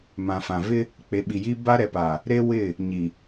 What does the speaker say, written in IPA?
m ã˨ f ã˨ v ɪ˦ | k͡p e˨ ɓ i˨ j i˦ b a˦ ɾ ɛ˨ p a˨ | ɾ e˦ w ɪ˦˨ | ɲ i˨

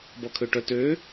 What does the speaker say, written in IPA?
b ɔ kʰ ø ʈ œ t ø

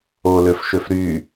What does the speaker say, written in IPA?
o l ø f ʃ ø f ɾ y

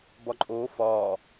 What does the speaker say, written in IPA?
b ɒ ǃʼ oː f ɒː

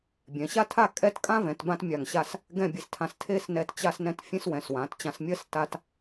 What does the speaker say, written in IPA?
bʲ ɛ̃˩˧ ɕ a˥ tʰ a˥˧ kʼ ɛ˥˧ t kʼ ã˥ v ɛ̃˩˧ t b ã˥ t mʲ a˧˩ ŋ ɕ a˥˧ s | ɡ ɛ̃˥˧ bʲ e˧ s tʰ ã˧ s tʰ e˥˧ s n ɛ˧ t t͡ɕ a˥ s n ɛ̃˥ t fʲ ẽ˥ s w ɛ̃˩˧ s w ã˩˧ t t͡ɕ ã˧ s mʲ ɜ˥ s t a˥ t

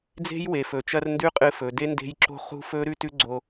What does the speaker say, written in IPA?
d͡z e̤˦ j w e˨ f ɵ˨ t͡ʃ ɐ˧ r n d ʉ˦ qʼ ɨ˧ f ɵ˨ d e˦ n d e̤˦ j ǁ o̤˦ χ ṳ˦ f ɵ˦ ɾ ʉ˦ t ʉ˦ ɡ͡ǀ o˧

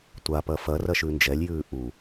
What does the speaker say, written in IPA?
tʷ a p ɐ f ɐ r ɐ ʃ ʉ n d͡ʒ ɛ lʲ j ʉː ʔ u

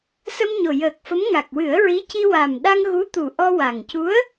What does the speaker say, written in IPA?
s ə˧ m ɲ o˨˩ j əː˨˩ k̚ f ə˧˥ m ŋ a˨˩ k̚ w ɨ˨˩˦ ə̯ ɹ i˧˥ c i˧ w a˨˩ m ɗ a˧ ŋ ɣ u˧˥ t̪ u˨˩ ʔ ɔ˧ w a˨˩ ŋ c u˧˥ ə̯

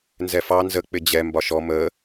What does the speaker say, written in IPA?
n z ɛ f ɑ n z ə k͡p ɪ d͡ʑ ɛ m b ɒ ʃ ɔ m əː

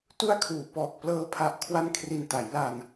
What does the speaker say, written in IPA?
t u˥˩ a̯ kʰ uː˨˩ p ɔː˨˩ k̚ p l ɤː˧ pʰ a˦˥ ʔ kʰ w a˥˩ n kʰ r i˧ n t a˩˦ j l a˧ n

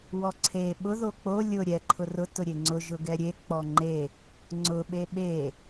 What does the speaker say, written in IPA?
w ɔ ǀʰ e ɓ ʊ ð o k͡p o lʲ ʊ ɾʲ ɛ ǃʰ ʊ r ʊ t ʊ ɾʲ e ŋ͡ǀ ʊ ʒ ʊ ɡ ɛ ɾʲ e k͡p ɔ ŋ͡ǃ e | ŋ͡ǀ ʊ ɓ e ɓ e

